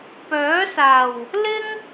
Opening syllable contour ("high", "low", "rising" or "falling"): rising